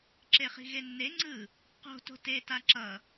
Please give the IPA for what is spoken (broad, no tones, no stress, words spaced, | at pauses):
ǁeχi̤ɣenːe ŋ͡ǀɯ | qo̤ to̤teta ǁʌ